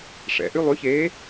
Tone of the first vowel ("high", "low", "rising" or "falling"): low